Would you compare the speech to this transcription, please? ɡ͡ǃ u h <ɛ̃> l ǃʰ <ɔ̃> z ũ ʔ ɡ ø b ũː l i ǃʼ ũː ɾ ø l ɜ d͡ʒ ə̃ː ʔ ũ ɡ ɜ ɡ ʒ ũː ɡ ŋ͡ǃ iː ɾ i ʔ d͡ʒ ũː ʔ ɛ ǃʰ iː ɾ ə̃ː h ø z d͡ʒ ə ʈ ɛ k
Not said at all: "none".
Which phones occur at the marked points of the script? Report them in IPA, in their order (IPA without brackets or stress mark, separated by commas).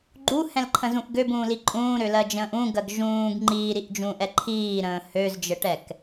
ɛ̃, ə̃